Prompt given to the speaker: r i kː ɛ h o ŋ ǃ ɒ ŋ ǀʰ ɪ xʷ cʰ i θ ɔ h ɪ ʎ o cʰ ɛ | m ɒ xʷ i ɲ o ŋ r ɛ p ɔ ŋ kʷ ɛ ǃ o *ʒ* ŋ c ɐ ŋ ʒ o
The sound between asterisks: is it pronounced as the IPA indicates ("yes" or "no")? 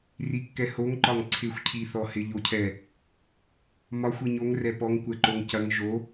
no